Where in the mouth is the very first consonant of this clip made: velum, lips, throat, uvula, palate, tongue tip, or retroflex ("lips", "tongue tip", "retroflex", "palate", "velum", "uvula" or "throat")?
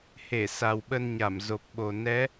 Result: throat